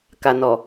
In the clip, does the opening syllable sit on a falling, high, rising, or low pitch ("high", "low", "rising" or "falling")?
low